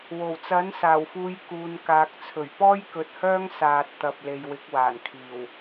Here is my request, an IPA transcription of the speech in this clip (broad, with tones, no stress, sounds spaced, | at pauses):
w o˨˩ w t͡s ɐ˨˥ n s aː˨˩ w f uː˨˧ j k uː˨ n k aː˨ k̚ t͡sʰ ɵ˨˩ ɥ p ɔː˥ j k ɵ˨ t̚ h œː˥ ŋ s aː˧ t̚ t̪ ɐ˧ p̚ l e˨ j w ɪ˨˥ k̚ w aː˨˩ n kʰ iː˨˩ w